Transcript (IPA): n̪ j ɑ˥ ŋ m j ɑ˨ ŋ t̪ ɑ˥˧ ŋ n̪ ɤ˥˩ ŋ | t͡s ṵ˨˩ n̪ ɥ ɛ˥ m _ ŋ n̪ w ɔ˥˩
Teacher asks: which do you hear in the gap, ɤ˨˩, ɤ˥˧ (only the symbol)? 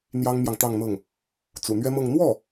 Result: ɤ˥˧